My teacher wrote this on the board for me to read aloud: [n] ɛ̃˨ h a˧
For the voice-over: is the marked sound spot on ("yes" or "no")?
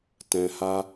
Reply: no